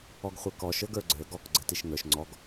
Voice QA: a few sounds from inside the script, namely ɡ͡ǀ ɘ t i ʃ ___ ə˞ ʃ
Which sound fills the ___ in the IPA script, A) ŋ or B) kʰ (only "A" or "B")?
A